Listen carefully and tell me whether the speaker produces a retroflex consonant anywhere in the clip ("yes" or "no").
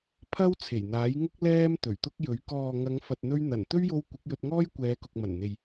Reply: no